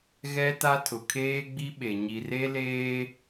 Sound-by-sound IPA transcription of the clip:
ɣ ɛ˦ t a˦ tʰ ʊ˨ kʰ eː˦ ɡ͡b i˦ ɓ e˨ ɲ i˨ r e˦ l eː˦

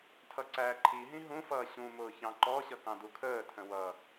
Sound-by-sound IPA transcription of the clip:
tʰ ʌ ǀ æː ǃʰ i ɦ ĩ ɦ ũ f ʌː ɕ ũ m ʊː ç ɑ̃ ǃ ɔ ɕ ʌ k ɑ̃ d u kʰ əː tʰ ə̃ w ʌ

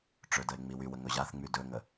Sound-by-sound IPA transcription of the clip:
ʈ͡ʂ ɵ d ə e̯ ŋ͡m i w y w ə ŋ ɵ ʑ a θ ŋ͡m y d ɵ ŋ ə

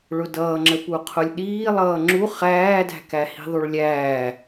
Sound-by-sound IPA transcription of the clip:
ɭ ʊ d ʌː ŋ͡ǁ ə p u qʰ ʊ lʲ ɗ iː lˠ ʌː ŋ͡ǁ u χ æː d æ̤ k æ h i̤ ðˤ u ɭ lʲ æː

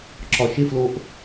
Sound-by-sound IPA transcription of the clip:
ǁ ɒ ʃ ɪ f l o ʔ

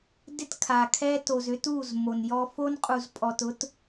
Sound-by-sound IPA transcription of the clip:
d ɪ˦ t kʰ a˨ kʰ ɛ˦ t o˨ z ʏ˦ t u˦˨ z m o˨ n j ɔ˦ f o˦ n qʼ u˨ z pʼ ɔ˨ t ʊ˦ t

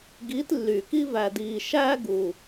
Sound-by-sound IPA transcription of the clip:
ɡ iː˨˦ t lː y˨˩ k i˦ v æ˨˩ d iː˨˩ ʃ æː˦ ɡ u˨˩

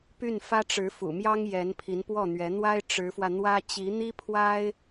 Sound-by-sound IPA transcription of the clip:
p y˥˩ n f ä˥ ʈ͡ʂ ɻ̩˧˥ f ṵ˨˩ m j ɑ˥ ŋ j ɛ˧˥ n pʰ i˧˥ n p w ɔ˥˩ n̪ ɥ ɛ˧˥ n̪ w a˥ ɪ̯ ʈ͡ʂ ɻ̩˧˥ f w ä˧ n̪ w ä˥ t͡ɕ i˧˥ n̪ i˥ pʰ w a˥ ɪ̯

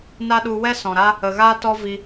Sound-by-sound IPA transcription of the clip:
n a˦ ɗ u˧ w ɛ˦ s ɔ̃˨ ɾ a˦ | ə˨ ɣ aː˦ t ɔ˦ v i˧

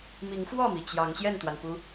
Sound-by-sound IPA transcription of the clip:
m i˨˦ ŋ f w ɔ˥˨ m i˩ t͡ɕ j ɑ˨˦ ŋ ɕ j ɛ˥˨ n t̪ w a˩ n p u˨˦

